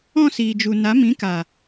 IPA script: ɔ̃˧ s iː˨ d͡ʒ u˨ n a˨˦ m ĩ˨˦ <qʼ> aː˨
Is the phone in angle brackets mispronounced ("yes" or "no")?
yes